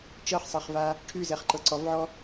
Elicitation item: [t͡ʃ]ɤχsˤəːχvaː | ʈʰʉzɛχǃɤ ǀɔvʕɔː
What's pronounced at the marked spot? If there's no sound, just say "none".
t͡ʃ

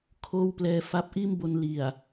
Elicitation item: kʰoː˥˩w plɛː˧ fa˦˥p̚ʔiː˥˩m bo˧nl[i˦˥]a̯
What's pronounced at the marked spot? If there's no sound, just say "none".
i˨˩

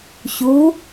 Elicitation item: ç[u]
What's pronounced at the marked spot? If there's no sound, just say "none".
u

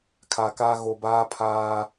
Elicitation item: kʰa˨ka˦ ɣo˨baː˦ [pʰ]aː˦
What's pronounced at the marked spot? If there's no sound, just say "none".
pʰ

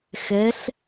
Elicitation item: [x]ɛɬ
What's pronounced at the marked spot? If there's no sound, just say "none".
x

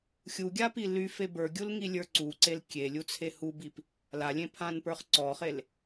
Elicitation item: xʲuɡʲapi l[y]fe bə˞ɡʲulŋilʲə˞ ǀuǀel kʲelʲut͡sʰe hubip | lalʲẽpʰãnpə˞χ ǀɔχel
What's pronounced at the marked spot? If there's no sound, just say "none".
y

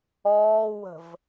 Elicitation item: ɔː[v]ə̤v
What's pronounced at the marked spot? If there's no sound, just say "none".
w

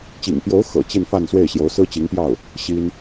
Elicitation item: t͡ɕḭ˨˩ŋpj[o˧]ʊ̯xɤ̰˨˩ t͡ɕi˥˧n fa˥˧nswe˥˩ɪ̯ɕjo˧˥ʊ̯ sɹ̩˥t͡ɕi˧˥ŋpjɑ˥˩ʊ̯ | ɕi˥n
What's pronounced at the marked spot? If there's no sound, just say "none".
o˧˥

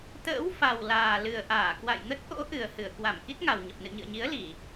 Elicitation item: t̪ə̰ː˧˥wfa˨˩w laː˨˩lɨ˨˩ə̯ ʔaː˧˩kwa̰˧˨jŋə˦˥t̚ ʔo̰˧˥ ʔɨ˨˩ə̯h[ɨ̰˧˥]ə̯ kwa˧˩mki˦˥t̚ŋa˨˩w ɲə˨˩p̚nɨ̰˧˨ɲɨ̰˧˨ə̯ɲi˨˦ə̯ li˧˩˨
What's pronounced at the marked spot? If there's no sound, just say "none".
ɨ˧˩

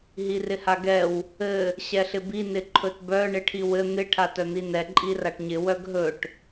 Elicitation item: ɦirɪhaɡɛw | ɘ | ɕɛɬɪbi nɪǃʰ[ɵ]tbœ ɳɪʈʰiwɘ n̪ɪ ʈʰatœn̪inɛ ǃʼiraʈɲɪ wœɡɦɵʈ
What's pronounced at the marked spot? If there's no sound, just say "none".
ɵ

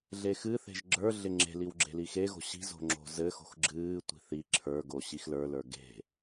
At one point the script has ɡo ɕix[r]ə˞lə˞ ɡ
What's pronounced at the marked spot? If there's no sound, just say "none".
l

